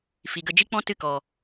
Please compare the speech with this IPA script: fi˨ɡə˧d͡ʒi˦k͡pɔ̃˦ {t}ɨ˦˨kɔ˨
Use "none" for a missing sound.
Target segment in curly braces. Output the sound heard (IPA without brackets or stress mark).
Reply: t